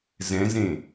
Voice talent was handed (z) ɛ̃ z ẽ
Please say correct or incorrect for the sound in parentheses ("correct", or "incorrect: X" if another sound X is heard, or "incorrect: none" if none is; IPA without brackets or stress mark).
correct